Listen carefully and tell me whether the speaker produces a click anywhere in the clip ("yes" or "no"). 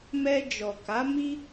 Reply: no